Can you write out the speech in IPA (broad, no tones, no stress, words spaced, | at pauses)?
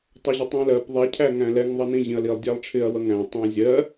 tˤʌʑɪtˤɛ̃lɜp ðˤɛ cʰæŋæ̃lɛŋ ðˤʌnĩ ʑĩɐ̯lilˠ dʲælˠʈ͡ʂʰɪɐ̯ wʌŋæ̃ tˤæ̃zʲɜ